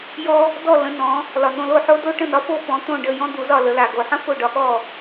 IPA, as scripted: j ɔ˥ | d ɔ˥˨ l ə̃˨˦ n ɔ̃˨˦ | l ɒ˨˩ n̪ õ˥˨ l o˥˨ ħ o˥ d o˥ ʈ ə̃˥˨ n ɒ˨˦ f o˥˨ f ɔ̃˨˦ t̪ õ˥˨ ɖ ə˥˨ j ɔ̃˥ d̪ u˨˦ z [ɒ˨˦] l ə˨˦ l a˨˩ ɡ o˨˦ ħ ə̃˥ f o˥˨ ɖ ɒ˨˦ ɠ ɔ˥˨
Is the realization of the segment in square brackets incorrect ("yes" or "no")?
yes